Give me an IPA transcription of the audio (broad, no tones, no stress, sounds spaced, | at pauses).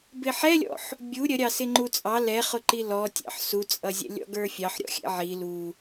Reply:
b ɪ ħ ɛ lʲ ɔ̰ ħ | bʲ u ɾʲ ə ɾʲ ɑ s ɪ ŋ͡ǃ u t͡sʼ ɑ l ɛ χ ʊ ǃ i l ɔ tʲ ɑ̰ ħ s u t͡sʼ ʌ zʲ ɛ̰ lʲ ɔ̰ ɡ ə˞ fʲ ɑ ħ ɾʲ ɔ̰ xʲ ɛ̰ ʕ i l u